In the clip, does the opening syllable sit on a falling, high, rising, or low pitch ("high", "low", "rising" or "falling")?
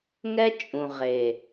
high